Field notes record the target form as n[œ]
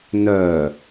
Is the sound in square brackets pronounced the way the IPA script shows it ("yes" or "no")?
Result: yes